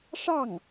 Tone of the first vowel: falling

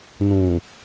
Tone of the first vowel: low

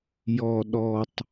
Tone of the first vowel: low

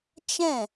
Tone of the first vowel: falling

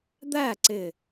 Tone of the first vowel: falling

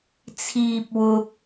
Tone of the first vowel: high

